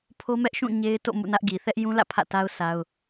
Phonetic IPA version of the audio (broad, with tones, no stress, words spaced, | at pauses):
pʰo˦mɛ˦ʔʃũ˦˨ ɲe˦ɪ̯ to̰˦˨ mṵ˦˨nä˦ʔɡi˨ θɛ˦ʔjũ˦lä̰˦˨ pʰä̰˦˨ta˦ʊ̯ sa˦ʊ̯